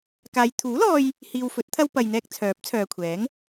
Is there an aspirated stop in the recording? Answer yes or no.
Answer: yes